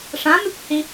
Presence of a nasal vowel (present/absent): present